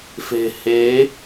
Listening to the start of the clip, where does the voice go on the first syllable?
low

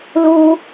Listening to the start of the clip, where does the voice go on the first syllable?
high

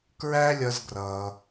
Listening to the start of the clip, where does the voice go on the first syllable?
high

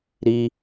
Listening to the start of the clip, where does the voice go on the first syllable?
high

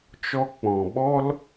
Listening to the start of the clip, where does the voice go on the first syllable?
high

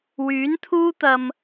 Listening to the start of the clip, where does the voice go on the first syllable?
rising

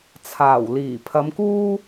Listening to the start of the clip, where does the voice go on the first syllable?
low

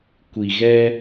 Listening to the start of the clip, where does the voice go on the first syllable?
low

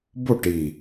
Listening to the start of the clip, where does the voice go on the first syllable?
falling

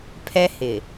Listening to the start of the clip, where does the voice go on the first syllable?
high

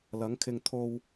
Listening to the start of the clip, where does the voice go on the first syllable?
rising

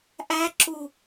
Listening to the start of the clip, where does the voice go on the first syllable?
high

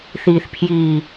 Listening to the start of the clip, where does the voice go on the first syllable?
low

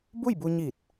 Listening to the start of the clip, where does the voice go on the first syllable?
falling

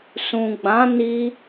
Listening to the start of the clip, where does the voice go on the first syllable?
low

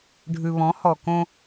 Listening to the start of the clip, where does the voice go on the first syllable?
low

